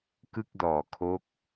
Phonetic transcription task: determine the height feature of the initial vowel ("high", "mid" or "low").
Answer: high